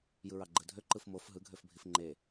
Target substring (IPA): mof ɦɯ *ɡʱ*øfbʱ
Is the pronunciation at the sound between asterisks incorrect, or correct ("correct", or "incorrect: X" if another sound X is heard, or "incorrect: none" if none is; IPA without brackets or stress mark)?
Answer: correct